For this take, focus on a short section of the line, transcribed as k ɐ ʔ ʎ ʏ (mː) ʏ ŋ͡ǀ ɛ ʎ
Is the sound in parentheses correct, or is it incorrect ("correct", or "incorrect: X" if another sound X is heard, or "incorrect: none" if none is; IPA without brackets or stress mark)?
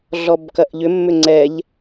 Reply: correct